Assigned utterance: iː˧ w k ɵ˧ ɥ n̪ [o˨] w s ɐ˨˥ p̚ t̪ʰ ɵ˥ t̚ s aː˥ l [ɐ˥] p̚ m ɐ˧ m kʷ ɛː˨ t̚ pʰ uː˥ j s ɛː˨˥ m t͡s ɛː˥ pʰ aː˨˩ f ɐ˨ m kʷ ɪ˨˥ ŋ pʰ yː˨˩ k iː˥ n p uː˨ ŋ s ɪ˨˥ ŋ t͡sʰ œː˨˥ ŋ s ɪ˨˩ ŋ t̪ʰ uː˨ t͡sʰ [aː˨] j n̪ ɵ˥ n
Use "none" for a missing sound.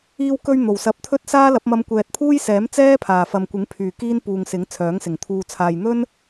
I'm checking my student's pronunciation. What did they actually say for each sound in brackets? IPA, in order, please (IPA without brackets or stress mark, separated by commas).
o˨˩, ɐ˨˥, aː˨